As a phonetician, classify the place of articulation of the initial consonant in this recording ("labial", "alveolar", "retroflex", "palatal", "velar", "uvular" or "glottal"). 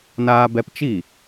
alveolar